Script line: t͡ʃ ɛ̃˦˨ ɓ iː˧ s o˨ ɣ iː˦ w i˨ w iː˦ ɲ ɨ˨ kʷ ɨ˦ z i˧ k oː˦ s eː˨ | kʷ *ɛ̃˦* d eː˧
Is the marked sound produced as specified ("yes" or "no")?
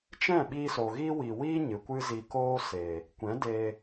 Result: no